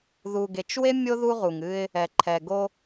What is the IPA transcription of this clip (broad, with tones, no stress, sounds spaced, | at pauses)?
ð u˨ ɡ e˨ t͡ʃ w e˦ mʲ o˦ ð u˦ ʁ u˨ ŋ ɨ˦ ɪ̯ | ɛ˨ ǃʰ ɛ˨ ɡ o˦